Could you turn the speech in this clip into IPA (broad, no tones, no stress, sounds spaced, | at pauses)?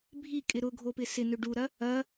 bʱ i kʼ ɪ ɾ ʊ ɡʱ o p ɪ s ɪ n ʏ ɖ u ɾ ɐ | ɐ